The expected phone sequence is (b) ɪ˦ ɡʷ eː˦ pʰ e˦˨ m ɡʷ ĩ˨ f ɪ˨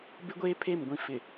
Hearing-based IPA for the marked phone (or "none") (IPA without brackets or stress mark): b